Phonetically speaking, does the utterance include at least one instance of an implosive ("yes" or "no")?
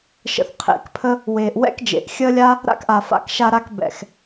no